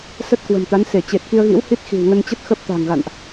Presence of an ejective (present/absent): absent